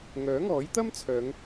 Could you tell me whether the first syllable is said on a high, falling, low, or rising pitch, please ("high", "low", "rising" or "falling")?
rising